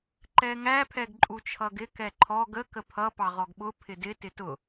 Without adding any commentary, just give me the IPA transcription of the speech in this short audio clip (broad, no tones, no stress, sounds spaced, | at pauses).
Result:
ǃ ɛ ŋ æ pʰ ɛ ɡ ǃʼ u t͡ʃʰ ʌ ɡ ɪ k ɛ ǃʰ ɔ ɡ ə k ə pʰ ʌ p ɑ ʁ ɔ ɡ ɓ ʊ pʰ ɪ d ɪ t ɪ t ʊ